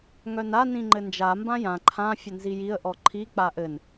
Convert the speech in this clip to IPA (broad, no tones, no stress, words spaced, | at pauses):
ŋœna nĩŋ͡ǃɘnd͡ʒa mbãjã ǃʰã fʲɘnzijiə̯ ʔɔǃʰi k͡paʔɘn